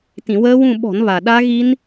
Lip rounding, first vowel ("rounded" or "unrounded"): unrounded